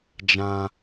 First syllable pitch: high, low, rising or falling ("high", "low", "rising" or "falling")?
high